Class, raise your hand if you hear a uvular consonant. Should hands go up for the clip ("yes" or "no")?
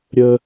no